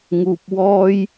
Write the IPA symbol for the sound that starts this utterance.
ŋ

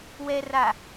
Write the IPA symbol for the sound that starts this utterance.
w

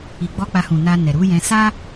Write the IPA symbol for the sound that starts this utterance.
i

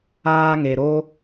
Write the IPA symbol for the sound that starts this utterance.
aː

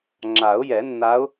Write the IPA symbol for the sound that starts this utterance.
ŋ͡ǁ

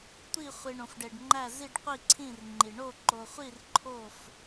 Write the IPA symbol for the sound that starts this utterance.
tʷ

